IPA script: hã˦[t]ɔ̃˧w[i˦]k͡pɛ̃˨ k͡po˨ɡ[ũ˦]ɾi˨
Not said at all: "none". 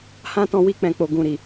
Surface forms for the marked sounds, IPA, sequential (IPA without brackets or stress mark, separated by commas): t, i˧, ũ˨